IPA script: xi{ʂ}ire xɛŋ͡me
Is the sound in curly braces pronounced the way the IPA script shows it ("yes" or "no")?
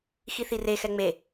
no